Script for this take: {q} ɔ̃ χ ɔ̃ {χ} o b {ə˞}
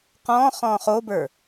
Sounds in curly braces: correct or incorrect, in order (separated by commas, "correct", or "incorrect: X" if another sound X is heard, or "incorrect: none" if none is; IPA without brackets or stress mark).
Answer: correct, correct, correct